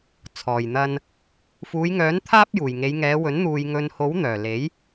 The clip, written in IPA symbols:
t͡sʰ ɔː˨˩ j n̪ ɐ˨ n | f uː˨˧ j ŋ œː˨˥ n t̪ʰ aː˥ p̚ j uː˨˩ j ŋ e˨˧ j ŋ ɛː˨˧ w ɵ˨˥ n n̪ uː˨ j ŋ ɵ˨ n h o˨˥ w n̪ œː˨˩ l e˨˥ j

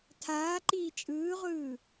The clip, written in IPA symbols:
tʰ aː ǃ iː t͡ʃʼ ɯː ʁʷ ɯː

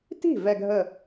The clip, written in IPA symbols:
t i̤˥˩ v ɛ˥˧ ɡʱ ə˥˩

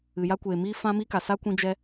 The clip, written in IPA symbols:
ɨ˨ j a˦ kʷ eː˨ m iː˦ f ã˦ m iː˦ k a˨ s a˦ kʷ ĩ˧ d͡ʒ ɛ˧

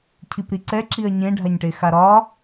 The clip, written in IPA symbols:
cʰ i p ɾ i ǀ ɛ ǁ i ɐ̯ ɲ ẽ ɖʱ a ɲ ʈ e x a ɾ ɒ

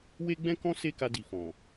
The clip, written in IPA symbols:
w e˦ ɡ͡b ɛ̃˦ k ɔ̃˦ s e˦ k a˧ d i˨ f ɔ̃˨

